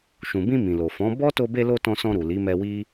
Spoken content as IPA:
ʃ ũ˨ b ĩ˧ m ĩ˨ l o˨ f ɔ̃˨˦ b ɔ˦ t o˧ b e˧ l o˧ t ɔ̃˧ s ɔ̃˧ ɾ u˨ l i˨˦ m ɛ˧ w i˦

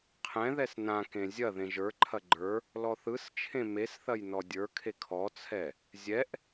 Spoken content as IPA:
qʰ ɛ̃ ð ɛ s n ã k ẽ zʲ ɐ ð ẽ ʒ ə˞ ǃʰ ɐ ɡ͡ǃ ə˞ | l ɔ θ ɯ s t͡ʃʰ ẽ m e s θ ɐ j n ɔ dʲ ə˞ kʰ e kʰ ɔ t͡sʰ ɛ | zʲ ɛ ʔ

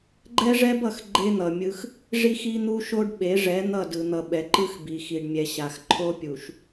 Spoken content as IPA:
ɡ͡ǃ ɛ˦ ʐ ɛ˦ b ʌ˨ x ɡ͡ǃ e˦ n̪ ʌ˨ mʲ ɯ˦ x | ʐ i˦ x i˦ n̪ u˦ ʃ o˦ ɖ ɓ e˨˦ ʐ ɛ˨˦ n̪ ʌ˦˨ d ɯ˨ n̪ ʌ˨ ɓ ɛ˨ ǃ ɯ˦ x b i˨ x i˨ ɖ mʲ ɛ˨ ɕ a˨ x ǃʰ o˦ pʲ u˨ ʃ

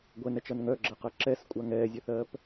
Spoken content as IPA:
ɡʷ ɛ n ɛ t͡ʃ ɐ n ŋ œ ɡ͡ǁ ɐ q ɐ ǁ ɛ s kʷʼ a ŋ ɛː zʲ œ θ ɜː p

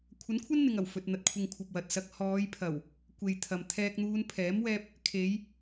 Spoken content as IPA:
kʷʰ ɐ˨˥ n kʷʰ ɐ˥ n n̪ ɪ˨ ŋ ɐ˨˩ w f ɵ˨ t̚ n̪ ɐ˨ t̚ kʷʰ ɪ˨ ŋ kʷʰ ɐ˨ p̚ w ɐ˨ t̚ s ɐ˧ k̚ h ɔː˨˧ j pʰ ɐ˨˩ w | kʷ e˨ j t̪ʰ ɐ˨ m t̪ʰ ɛː˧ k̚ n̪ uː˧ n pʰ ɛː˨˥ m w ɛː˧ p̚ | kʰ e˨˧ j

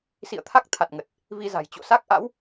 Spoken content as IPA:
s ḭ˧˨ ə̯ t̪ʰ a˦˥ k̚ t̪ʰ a˨˩ t̚ ŋ ə˨˩ t̚ | v i˧ z a̤˨˩ j t͡ɕ o̰˧˨ s a˦˥ k̚ ʔ a̰˧˥ w

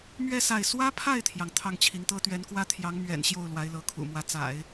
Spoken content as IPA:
m ɥ ɛ˥˧ s a˥˩ ɪ̯ s w ä˥ pʰ a˥˩ ɪ̯ t̪ʰ j ɑ˩ ŋ t̪ʰ ɑ˥˩ ŋ t͡ɕʰ i˧˥ ŋ t̪ ɤ˥ t̪ ɥ ɛ˧˥ n k w ä˥ t̪ʰ j ɑ˧˥ ŋ m ɥ ɛ̰˨˩ n ɕ j o˥˩ ʊ̯ l w a˧˥ ɪ̯ l ɤ˧˥ kʰ ṵ˨˩ m w ä˧˥ t͡s a̰˨˩˦ ɪ̯

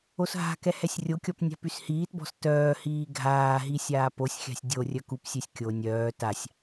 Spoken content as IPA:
o s ɦ a̤ k ɛ h ɛ sʲ rʲ o kʲ ɔ p nʲ a̤ p y s h iː t b ɔ̤ s t œː h iː ɡʱ aː ɦ i sʲ aː p o sʲ xʲ a̤ sʲ dʲ o rʲ œ k u p sʲ ø sʲ kʲ o nʲ œː t a sʲ

